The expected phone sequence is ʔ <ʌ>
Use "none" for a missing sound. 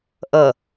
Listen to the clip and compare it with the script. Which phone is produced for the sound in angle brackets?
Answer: ʌ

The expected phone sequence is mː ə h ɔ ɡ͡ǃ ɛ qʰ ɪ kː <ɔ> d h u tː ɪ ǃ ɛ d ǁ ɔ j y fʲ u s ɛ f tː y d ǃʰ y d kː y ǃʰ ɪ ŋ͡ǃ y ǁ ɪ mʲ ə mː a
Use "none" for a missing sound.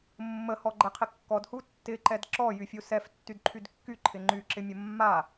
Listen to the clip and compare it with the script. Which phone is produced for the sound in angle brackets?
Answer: ɔ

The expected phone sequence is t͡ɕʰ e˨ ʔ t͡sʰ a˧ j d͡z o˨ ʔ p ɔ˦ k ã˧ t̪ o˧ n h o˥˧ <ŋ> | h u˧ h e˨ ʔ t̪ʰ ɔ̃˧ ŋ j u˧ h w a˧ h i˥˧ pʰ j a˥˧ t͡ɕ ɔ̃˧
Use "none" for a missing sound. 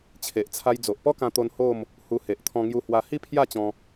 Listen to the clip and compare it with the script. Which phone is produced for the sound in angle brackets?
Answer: m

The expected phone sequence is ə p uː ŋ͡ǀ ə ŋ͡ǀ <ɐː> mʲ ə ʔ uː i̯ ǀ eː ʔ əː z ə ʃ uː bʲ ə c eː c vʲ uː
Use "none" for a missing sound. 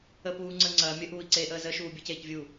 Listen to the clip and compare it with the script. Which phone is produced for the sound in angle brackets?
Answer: ɐː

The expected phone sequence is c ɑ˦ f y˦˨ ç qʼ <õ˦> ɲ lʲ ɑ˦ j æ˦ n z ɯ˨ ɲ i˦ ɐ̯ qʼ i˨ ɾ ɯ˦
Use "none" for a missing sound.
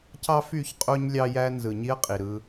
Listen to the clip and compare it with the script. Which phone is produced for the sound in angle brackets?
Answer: o˦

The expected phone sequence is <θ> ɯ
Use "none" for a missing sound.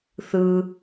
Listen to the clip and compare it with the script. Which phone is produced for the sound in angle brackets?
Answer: θ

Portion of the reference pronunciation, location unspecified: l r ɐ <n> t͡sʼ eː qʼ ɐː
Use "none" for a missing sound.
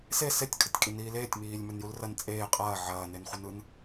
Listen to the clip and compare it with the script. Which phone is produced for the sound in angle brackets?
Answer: n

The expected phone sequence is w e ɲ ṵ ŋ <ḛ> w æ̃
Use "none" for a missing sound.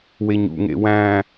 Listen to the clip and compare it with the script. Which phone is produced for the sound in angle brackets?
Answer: ḛ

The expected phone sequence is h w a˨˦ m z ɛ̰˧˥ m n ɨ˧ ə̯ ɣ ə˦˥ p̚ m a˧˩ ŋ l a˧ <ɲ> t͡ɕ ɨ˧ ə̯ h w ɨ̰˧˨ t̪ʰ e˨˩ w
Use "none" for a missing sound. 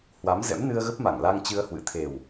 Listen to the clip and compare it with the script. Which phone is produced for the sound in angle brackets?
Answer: ŋ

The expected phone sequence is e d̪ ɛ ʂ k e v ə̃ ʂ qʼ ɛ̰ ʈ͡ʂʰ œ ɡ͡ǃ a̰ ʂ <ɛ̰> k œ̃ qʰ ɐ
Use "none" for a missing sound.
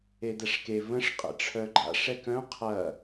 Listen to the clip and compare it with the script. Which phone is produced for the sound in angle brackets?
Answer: ɛ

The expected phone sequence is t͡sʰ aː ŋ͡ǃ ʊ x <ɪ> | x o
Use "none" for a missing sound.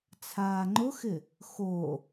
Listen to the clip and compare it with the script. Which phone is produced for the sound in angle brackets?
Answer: ɪ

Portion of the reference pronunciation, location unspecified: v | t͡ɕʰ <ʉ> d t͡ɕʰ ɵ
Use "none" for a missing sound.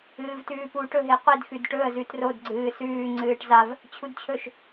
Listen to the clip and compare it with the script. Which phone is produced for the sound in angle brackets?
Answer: u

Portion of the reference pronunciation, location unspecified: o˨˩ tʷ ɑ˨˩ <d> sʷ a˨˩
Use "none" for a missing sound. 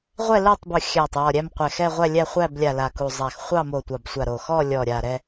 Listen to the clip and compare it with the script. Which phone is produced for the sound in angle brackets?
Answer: b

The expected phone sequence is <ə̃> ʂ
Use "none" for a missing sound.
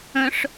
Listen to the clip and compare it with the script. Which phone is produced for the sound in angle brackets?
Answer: ə̃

